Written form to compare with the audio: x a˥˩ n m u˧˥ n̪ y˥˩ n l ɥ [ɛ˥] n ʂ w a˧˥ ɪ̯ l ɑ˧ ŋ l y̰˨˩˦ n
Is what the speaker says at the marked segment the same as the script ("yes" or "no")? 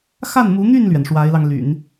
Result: no